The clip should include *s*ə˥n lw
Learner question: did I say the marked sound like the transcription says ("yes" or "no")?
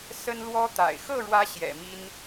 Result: yes